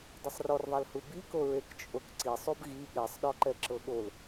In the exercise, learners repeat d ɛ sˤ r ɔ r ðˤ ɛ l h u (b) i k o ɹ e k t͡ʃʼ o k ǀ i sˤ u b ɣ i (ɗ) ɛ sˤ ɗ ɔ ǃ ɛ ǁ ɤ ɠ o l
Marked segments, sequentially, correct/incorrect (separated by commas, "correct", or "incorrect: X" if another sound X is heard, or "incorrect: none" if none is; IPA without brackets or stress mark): correct, incorrect: ɠ